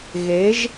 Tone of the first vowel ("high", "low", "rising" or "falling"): rising